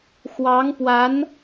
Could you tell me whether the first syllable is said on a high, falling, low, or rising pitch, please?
rising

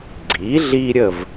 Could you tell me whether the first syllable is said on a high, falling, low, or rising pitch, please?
rising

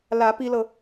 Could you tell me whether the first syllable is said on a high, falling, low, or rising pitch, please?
rising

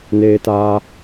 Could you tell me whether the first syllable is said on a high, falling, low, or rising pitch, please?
high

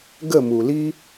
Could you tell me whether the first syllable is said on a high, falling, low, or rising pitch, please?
falling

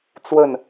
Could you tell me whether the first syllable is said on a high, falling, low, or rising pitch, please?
falling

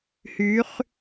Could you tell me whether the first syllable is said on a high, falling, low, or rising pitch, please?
rising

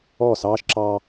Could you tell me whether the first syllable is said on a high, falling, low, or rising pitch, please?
falling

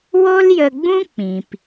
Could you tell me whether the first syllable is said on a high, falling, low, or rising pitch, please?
high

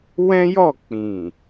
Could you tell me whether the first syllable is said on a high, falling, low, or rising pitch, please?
high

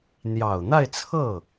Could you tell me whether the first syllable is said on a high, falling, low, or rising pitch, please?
low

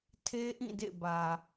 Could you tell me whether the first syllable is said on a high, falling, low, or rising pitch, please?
high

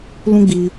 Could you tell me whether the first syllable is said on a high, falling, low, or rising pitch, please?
high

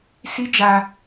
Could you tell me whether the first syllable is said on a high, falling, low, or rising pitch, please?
high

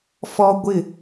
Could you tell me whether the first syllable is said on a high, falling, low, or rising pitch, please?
high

